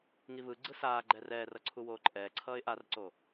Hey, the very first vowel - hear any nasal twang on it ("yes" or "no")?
no